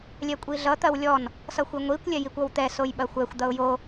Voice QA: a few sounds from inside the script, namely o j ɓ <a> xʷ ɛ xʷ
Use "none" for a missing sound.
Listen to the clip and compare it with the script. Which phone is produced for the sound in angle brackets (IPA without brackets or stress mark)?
ɐ